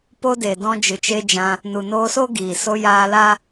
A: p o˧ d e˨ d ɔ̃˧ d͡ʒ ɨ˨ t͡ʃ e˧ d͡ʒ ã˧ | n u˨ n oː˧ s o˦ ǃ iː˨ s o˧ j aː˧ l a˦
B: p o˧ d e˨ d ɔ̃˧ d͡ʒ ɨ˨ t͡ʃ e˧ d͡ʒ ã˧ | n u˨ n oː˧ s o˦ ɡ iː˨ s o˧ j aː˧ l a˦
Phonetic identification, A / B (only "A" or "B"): B